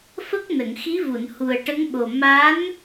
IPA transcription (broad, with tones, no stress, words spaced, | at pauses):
fə˦˥k̚ nə˨˩˨ŋxi˧˥vu˨˩˨n hu˨˩ə̯ʈə˧˥ŋɓo˨˩ ma˧˥n